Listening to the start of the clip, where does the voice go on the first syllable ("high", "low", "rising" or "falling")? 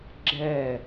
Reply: falling